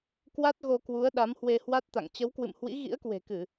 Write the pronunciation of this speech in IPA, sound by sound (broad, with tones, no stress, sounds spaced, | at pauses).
k w a˦˥ t̚ ɣ o˧ k w u˨˦ ə̯ ɗ a˨˦ m h w e˧ h w a˦˥ t̚ t̪ a̰˧˨ ŋ t͡ɕ ə˨˦ w k w ɨ̰˧˨ m h w ḭ˧˥ ɣ ḭ˧˥ ə̯ k w e̤˨˩ k ɨ˧˩˨